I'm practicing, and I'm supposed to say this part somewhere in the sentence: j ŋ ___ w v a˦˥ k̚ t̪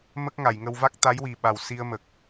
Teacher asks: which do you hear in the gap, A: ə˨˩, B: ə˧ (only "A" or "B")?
B